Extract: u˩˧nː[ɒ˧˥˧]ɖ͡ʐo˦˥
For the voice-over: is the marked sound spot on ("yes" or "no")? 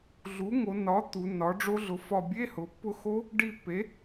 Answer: no